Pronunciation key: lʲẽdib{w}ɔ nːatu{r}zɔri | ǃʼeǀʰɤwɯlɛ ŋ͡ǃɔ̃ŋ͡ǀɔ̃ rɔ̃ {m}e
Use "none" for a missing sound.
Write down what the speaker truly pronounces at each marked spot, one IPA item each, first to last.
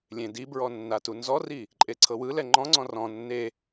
ɹ, n, nː

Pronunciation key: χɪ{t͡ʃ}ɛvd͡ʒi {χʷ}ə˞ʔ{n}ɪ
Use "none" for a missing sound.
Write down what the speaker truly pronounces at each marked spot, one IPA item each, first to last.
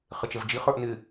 t͡ʃ, χ, n

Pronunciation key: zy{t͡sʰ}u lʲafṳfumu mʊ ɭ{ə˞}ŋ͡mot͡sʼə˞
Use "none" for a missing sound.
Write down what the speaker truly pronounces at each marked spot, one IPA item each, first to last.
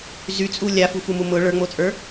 t͡sʼ, ə˞

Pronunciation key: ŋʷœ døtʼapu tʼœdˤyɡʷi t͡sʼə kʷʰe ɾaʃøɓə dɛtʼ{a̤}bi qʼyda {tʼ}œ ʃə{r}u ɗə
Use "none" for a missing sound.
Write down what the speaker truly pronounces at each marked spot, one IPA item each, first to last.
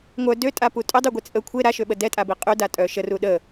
a, tʼ, r

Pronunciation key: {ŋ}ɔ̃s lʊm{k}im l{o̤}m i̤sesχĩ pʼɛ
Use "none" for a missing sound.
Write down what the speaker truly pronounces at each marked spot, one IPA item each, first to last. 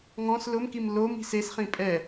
ŋ, k, o

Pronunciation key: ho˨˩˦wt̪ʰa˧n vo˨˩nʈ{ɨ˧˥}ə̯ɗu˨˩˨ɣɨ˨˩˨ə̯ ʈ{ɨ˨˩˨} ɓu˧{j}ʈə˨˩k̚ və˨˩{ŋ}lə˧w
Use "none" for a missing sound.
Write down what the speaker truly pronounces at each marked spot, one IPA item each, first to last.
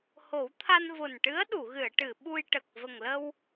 ɨ˧˥, ɨ˨˩˨, j, ŋ

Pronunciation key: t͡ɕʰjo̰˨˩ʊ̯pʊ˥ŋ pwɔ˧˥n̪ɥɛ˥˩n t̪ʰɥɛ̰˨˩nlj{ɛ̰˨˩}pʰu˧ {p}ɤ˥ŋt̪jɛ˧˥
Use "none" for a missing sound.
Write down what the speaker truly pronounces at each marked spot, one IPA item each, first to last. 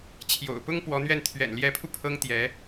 ɛ˧˥, pʰ

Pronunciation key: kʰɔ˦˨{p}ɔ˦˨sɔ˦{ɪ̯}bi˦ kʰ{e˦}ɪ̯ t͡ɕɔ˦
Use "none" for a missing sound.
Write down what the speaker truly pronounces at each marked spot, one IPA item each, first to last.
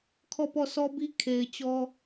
p, none, e˨

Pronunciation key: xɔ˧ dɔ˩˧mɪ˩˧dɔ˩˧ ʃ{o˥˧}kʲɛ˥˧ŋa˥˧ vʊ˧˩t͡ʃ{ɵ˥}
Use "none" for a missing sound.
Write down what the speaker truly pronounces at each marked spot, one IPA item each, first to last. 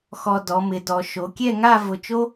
o˩˧, o˥

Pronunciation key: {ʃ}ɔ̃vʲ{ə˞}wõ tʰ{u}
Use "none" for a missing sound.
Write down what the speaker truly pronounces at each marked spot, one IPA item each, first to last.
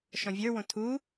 ʃ, ə˞, u

